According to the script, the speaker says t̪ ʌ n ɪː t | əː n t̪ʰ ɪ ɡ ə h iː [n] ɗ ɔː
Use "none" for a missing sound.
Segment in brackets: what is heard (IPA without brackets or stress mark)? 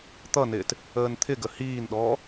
n